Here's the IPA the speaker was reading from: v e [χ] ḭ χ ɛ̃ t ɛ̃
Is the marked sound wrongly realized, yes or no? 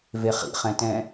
no